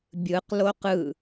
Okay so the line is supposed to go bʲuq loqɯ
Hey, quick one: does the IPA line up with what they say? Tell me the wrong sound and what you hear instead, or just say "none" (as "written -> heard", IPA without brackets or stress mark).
u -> ɯ